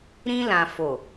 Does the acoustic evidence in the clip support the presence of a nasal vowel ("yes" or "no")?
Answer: yes